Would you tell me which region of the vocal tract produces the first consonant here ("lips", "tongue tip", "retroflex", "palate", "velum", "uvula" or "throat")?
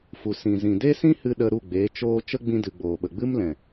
lips